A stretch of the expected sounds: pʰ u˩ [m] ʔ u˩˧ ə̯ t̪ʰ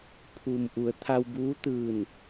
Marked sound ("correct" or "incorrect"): correct